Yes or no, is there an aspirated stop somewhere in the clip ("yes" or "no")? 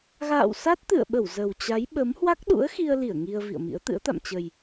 no